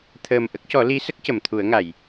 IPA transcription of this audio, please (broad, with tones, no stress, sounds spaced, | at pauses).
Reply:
t̪ʰ əː˨˩ m ʔ ə˦˥ k̚ c ɔ˨˩˦ l i˧˥ s ə˦˥ k̚ c ə˨˩˨ m t̪ʰ u˨˩˦ ə̯ ŋ a˨˩˨ j